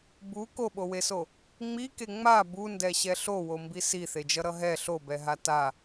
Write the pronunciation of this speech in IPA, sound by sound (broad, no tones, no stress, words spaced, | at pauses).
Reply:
bu koɓoweso | ŋ͡mike ŋ͡ma bundɛɕɛ ɬowombi siθed͡ʒʌɾʌ ɦɛ ɬobɛɦa ta